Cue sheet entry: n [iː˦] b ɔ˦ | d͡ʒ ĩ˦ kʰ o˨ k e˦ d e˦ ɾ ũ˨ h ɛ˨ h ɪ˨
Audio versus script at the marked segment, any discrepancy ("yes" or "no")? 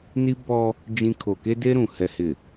yes